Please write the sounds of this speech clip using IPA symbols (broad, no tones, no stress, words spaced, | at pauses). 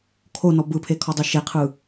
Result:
kʰonɔ bɯpʰekʰɔdˤo ʃeqʰɯ